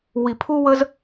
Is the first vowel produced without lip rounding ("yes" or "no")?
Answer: yes